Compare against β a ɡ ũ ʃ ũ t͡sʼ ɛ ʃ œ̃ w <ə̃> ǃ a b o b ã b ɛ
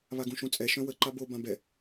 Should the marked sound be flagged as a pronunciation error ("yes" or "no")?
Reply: yes